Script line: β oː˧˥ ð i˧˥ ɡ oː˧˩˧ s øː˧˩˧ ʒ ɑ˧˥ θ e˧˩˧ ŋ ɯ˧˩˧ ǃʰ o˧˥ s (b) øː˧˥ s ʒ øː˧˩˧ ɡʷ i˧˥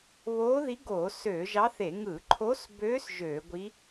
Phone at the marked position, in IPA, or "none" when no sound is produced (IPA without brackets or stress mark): b